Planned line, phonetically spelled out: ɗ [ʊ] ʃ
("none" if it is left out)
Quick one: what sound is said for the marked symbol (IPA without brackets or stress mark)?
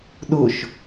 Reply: ʊ